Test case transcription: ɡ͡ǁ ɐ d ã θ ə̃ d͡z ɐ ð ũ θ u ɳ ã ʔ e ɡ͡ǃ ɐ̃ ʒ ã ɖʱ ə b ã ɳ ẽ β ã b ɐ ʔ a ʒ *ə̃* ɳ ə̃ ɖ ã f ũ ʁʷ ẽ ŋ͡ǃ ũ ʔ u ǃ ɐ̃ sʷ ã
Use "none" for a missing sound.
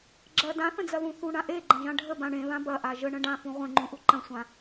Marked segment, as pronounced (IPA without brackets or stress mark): ə